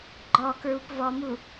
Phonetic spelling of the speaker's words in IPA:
ɡ͡ǃ ɔ k ɹ u p v ɔ m u

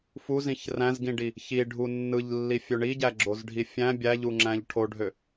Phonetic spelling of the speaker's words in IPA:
f u z ĩ ç r æ̃ z ɡ ĩ ɖ i | ç i ɖʱ u nː ɯ ʎ lː i fʲ ø ɳ i ɟ æ ɡ͡ǁ o z ɖʱ i fʲ æ̃ bʲ æ ʎ u ŋ͡ǁ æ̃ ʎ ʈʰ o ɖʱ ø

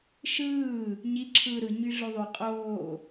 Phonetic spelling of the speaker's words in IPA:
ʃ ɯː | ɲ i ǁʰ ɯː ɾ ɯ ɲ y ɮ o ðˤ y qʼ oː

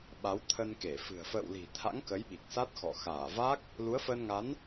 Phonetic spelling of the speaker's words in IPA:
ɓ a˨˦ w t̪ʰ ə˧ n k e˧˩ f ɨ̤˨˩ ə̯ f ə̰ː˧˨ w l i̤˨˩ t̪ʰ a̰˧˥ ŋ k ə˨˦ j ɓ i˨˩ k̚ s a˦˥ t̚ x ɔ̰˧˨ x aː˧˩ v a˦˥ k̚ | l u˨˦ ə̯ f əː˧ n ŋ a˨˦ n

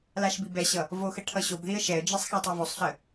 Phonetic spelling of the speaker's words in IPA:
l a ʃ b i b ɛ ɕ ʌ | v o x ə ʈʰ ʌ ɕ o b ð i ə̯ ʃ ɛ ə̯ d͡ʒ i sˤ x a tˤ i v o sˤ ɬ ə

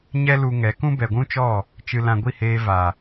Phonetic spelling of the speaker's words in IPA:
ɲ ɛ˦ l u˧ ŋ ɛ˨˦ k ũ˦ b ɛ˨ ɡʷ ũ˦ t͡ʃ ɔ˦˨ | t͡ʃ ɨ˧ l ã˧ ɡʷ i˦˨ h eː˧ v a˨

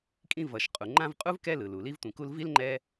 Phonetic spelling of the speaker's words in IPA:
kʼ ĩ˦ v ʌ˩ ʃ qʼ u˩ ŋ͡ǃ ã˦ v qʼ u˥ v k ɛ˦ l ɯ˩ l u˩ l i˦ v tʷ ĩ˨ k u˦ l v i˥ l ŋ͡ǃ ɛ˦

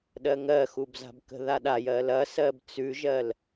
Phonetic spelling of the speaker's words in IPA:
ɗ ɜ ŋ ɜ x u b z a̤ b k ə̤ ð a ɗ a j ɜ l ɐ s ɜ b t͡s ʉ ʒ ɜ l

